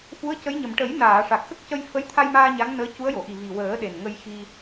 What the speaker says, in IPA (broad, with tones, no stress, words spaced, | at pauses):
fu˧˥ə̯cə˧˥jɲə˨˩m ʈə˨˩˦jnaː˨˩˨ ʂa˨˩k̚xə˦˥k̚cə˧j fə˧˥jt̪ʰa˧jmaː˧ ɲa˧˥ŋnəː˧˥cu˧˥ə̯jo˨˩˨ ʔi˨˩ vi˨˩wəː˨˩˦ɗe˨˩n ŋə˧jxi˧